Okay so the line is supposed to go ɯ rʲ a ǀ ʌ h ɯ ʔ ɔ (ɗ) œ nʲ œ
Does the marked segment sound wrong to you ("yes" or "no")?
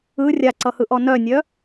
yes